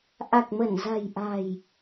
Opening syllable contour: low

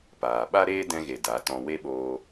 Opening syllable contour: low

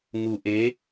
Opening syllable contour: low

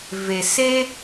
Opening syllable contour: low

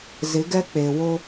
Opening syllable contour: rising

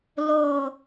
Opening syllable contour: low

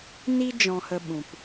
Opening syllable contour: high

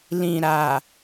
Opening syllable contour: low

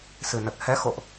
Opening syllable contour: low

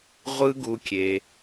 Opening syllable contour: high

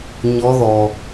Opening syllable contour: rising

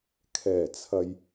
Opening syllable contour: low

